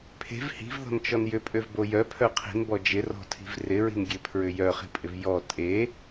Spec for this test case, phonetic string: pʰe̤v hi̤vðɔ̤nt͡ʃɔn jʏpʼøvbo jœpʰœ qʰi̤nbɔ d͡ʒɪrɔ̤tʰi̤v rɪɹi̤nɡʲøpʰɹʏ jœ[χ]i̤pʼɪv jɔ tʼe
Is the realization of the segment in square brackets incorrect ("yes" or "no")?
no